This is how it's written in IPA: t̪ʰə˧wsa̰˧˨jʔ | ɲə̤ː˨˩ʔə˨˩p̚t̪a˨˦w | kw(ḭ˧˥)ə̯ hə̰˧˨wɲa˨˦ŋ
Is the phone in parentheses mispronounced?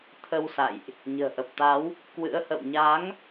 yes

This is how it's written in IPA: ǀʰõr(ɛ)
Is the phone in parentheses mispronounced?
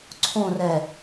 no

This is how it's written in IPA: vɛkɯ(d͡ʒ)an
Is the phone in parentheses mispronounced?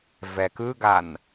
yes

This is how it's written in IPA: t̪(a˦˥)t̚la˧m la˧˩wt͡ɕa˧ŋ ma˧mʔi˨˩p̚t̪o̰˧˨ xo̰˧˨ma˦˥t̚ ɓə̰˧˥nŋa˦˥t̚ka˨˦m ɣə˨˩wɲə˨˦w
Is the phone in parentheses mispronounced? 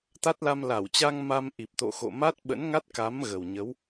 no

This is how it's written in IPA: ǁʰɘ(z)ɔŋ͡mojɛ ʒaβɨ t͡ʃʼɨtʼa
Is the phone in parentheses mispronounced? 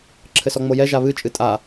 yes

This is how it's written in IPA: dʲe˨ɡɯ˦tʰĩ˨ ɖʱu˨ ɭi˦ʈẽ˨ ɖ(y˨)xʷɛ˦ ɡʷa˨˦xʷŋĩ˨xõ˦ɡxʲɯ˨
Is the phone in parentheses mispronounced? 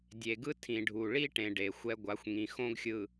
yes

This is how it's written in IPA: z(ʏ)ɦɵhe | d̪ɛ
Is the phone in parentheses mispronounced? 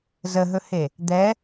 yes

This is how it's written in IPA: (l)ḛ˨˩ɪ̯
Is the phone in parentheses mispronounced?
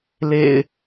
no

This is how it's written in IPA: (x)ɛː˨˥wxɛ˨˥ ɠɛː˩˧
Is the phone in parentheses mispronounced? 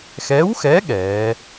no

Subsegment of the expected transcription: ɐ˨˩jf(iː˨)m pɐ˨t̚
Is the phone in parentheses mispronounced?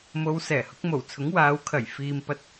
no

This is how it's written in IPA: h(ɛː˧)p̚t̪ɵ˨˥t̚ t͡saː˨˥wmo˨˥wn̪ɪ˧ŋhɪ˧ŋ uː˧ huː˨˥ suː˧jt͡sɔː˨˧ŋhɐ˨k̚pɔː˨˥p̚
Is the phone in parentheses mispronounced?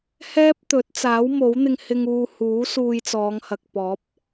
yes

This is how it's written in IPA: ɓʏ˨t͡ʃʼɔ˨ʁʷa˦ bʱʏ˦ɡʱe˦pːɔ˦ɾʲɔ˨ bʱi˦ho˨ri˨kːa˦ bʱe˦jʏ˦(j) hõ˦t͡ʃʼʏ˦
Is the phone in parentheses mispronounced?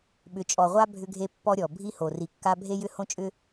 yes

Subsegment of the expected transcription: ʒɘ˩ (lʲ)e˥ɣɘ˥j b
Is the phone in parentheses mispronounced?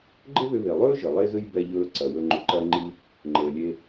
yes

